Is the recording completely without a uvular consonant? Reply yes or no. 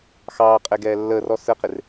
no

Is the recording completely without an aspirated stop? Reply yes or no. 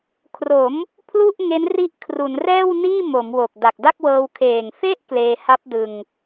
no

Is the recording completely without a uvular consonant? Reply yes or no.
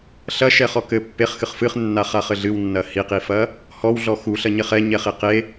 no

